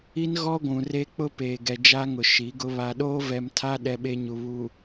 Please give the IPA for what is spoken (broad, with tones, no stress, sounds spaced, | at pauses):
i˦ n ɣ ɔ˦ ɡʷ ũ˨ r e˦ k͡p ʊ˦ p eː˨ ɡ ɛ˨ d͡ʒ a˦ ŋ ʊ˨ ʃ i˨˦ ɡ ʊ˦ β a˨ ɗ oː˦ v ɛ˨ m tʰ a˦ ɗ ɛ˦ ɓ e˦ ɲ u˨ β u˨